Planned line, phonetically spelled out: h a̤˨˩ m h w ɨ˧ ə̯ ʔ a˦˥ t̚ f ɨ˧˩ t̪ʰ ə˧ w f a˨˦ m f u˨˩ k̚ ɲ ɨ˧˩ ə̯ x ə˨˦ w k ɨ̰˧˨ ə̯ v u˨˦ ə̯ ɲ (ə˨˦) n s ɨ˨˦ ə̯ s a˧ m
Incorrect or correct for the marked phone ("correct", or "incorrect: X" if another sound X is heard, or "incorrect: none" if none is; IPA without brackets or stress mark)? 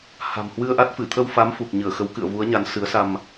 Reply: incorrect: a˨˦